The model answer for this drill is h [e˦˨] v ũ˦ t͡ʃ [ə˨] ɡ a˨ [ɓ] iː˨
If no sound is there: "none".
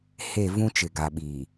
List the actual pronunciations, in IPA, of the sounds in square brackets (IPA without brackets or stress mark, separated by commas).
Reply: e˦˨, ɪ˨, ɓ